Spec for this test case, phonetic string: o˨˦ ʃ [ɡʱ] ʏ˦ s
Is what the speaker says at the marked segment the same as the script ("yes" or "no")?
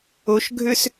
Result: yes